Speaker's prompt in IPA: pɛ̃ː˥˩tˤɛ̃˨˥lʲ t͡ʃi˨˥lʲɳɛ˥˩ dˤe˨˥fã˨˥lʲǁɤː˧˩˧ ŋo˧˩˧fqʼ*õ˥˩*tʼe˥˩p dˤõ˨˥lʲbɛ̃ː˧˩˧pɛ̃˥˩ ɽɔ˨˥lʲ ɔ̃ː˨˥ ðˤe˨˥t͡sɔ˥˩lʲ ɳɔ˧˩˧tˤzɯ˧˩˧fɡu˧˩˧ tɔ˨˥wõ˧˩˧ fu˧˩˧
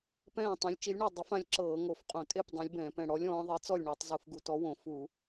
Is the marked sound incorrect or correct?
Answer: incorrect